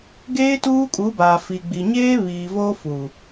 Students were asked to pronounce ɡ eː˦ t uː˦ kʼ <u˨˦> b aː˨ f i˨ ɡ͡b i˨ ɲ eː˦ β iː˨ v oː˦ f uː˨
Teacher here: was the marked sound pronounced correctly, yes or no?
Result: yes